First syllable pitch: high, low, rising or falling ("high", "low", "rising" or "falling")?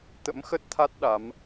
rising